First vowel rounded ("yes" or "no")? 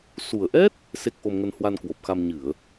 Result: yes